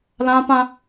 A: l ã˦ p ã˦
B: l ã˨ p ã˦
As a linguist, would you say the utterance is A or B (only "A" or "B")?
A